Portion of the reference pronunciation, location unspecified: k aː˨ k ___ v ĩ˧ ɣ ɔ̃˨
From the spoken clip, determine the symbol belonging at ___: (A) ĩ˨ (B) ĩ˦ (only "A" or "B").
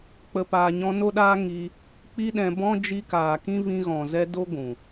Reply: B